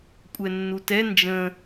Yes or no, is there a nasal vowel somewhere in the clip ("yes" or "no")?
yes